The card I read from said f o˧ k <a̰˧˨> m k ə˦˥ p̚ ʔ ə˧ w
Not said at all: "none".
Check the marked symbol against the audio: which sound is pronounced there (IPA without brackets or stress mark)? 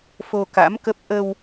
a̰˧˥